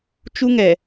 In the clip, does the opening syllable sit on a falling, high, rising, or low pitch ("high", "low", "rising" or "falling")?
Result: high